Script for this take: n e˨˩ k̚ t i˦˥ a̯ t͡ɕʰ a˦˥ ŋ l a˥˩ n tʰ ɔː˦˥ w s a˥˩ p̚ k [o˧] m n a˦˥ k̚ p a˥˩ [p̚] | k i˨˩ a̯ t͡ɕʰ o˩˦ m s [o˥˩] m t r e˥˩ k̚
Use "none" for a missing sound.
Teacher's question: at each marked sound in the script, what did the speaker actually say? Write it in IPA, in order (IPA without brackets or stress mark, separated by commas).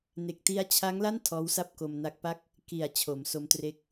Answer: o˧, k̚, o˦˥